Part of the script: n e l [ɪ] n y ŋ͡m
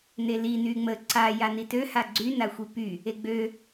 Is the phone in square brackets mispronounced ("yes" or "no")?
yes